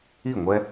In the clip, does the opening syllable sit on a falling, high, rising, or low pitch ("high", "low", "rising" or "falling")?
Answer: falling